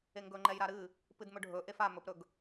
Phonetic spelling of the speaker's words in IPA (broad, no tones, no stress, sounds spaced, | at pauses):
e ŋ ɡ ɵ ŋ͡ǃ ɛ j ɾ a ɾ ɨ | p ɨ d m ɵ ɖʱ ɵ ʔ e f a m ɵ p ɾ ɵ ɡ